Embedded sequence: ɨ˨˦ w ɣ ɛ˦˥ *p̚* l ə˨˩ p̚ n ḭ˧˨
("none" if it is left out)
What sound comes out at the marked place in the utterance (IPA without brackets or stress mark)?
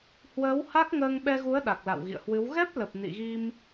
p̚